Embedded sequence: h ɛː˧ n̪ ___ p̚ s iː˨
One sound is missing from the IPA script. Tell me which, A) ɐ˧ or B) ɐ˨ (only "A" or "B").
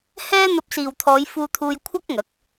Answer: A